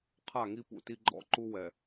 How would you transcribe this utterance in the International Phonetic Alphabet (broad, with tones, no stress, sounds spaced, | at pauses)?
qʰ a˦˨ ŋ i˦ p ṵ˦˨ t i˦ ɡ͡ǃ ɔ̰˦˨ ǃ u˦ w ɛ˨